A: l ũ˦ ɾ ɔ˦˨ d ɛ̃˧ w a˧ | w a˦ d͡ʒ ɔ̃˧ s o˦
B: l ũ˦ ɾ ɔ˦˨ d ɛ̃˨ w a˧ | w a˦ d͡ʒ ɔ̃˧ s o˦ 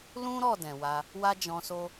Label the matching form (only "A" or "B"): B